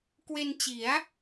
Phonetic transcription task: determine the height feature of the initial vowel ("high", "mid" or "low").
mid